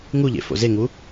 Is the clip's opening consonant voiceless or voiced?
voiced